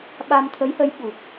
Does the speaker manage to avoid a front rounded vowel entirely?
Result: yes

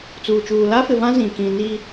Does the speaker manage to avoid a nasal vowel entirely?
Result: no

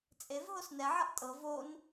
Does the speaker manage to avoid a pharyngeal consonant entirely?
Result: no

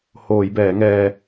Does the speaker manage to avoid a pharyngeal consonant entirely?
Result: yes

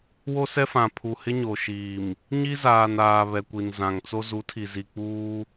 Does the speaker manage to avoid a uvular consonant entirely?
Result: yes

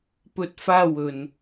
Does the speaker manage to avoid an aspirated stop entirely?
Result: yes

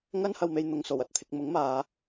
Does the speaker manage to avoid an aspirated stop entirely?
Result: no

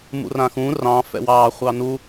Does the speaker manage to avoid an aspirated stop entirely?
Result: yes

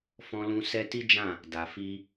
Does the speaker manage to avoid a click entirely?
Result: yes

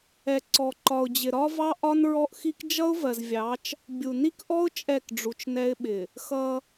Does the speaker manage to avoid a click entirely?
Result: no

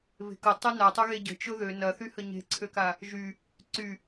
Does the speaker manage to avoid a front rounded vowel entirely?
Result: no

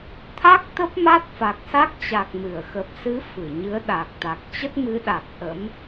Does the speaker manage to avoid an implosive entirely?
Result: no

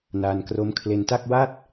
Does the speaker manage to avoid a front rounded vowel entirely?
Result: yes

